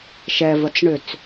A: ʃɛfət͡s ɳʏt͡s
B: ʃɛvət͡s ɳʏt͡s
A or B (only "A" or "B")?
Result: B